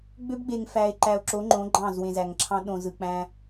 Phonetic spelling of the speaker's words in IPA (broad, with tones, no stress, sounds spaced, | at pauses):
ɡ͡b ø˦ b ɡ͡b e˨ ŋ f æ˨ e̯ ǃ æ˨ o̯ ǁ o˨˦ ŋ͡ǃ õ˨˦ ɡ͡ǃ ɑ̃ː˦˨ z w ẽ˨ z æ˨ ŋ ǁʰ ɑ̃˦ ɗ õ˨ z ɯ˨ k͡p æ̃˦